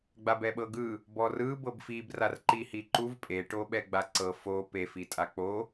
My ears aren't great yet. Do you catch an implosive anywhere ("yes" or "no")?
yes